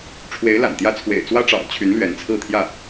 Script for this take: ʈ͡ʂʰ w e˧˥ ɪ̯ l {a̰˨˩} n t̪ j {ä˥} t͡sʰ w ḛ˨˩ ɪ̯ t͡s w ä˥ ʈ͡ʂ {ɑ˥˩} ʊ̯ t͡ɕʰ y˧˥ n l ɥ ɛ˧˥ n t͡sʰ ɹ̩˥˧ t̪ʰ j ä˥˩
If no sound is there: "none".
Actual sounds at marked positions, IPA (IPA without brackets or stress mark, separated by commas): a̰˨˩, ä˥, ɑ̰˨˩